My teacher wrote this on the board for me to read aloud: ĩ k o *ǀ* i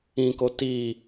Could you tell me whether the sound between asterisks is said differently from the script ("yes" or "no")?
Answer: yes